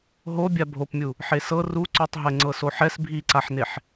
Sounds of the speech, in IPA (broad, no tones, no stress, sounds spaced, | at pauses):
ɦ o bʲ a bʱ o p mʲ u | ħ e s ɤ r u ǀ o tˤ ɦ ɛ ŋ͡ǀ ɤ s o ħ ɛ s bʱ i ǀ a ħ n e ħ